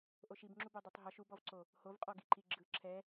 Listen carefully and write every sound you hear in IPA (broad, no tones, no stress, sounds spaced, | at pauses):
ʔ o ʃ i b ŋ͡ǁ u b o dˤ e tˤ ɦ ɔ ʃ u b ɔ v ǀ o | h o v qʼ ɔ ɡ i ǃ i ɡ͡ǁ ɯ ǁʰ ɛ